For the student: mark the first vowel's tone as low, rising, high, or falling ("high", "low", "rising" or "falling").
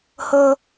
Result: high